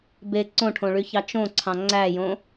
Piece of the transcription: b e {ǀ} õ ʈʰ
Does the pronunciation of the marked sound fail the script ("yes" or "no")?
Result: no